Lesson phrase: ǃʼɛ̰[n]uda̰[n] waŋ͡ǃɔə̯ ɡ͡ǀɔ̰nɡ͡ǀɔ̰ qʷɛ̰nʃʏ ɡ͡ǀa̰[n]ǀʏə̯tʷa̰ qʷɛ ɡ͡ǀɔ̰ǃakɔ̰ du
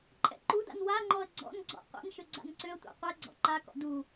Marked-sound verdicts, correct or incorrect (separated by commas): incorrect, correct, correct